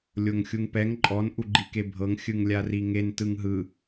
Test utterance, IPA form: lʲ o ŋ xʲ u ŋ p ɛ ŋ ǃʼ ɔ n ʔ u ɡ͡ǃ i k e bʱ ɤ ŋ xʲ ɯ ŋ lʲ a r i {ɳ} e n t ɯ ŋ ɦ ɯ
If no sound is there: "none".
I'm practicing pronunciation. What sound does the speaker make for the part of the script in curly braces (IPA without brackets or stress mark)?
ŋ